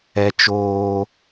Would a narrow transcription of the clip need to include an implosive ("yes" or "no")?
no